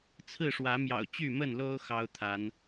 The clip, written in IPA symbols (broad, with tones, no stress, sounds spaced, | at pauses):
t͡sʰ ɹ̩˥˨ ʂ w ä˨˦ m j ɑ̰˨˩ ʊ̯ t͡ɕ y˥˨ m ə˥˨ n l o˦ ʊ̯ x ɑ˦ ʊ̯ t̪ʰ a˨˦ n